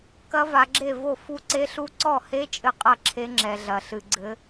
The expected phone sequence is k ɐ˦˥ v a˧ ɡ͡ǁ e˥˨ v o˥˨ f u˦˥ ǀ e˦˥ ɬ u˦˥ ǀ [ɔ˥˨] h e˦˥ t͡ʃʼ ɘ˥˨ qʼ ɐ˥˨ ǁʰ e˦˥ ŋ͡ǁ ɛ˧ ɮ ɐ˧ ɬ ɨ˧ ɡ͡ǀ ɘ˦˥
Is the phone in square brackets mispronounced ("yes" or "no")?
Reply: no